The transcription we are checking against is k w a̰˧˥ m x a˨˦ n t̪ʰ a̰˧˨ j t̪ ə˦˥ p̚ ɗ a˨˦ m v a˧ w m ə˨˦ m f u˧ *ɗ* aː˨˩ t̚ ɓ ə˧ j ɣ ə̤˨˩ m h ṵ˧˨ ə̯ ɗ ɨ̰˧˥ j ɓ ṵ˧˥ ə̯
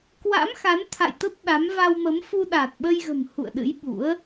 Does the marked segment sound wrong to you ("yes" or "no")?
no